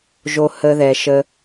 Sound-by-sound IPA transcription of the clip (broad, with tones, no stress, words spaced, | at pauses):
ʒo˧hə˧ ðɛ˨ʃə˧